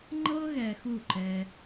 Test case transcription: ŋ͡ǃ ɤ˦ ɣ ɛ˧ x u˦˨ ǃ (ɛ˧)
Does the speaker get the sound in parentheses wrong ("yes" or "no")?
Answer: no